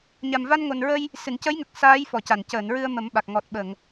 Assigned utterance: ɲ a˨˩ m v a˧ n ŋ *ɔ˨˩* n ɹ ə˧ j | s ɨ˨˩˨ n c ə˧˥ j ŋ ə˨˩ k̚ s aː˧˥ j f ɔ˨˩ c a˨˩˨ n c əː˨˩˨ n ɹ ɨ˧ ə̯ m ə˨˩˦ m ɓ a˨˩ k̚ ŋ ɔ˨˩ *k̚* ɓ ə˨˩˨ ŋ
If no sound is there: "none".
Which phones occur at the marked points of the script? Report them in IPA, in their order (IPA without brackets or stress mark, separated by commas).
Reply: o˨˩, t̚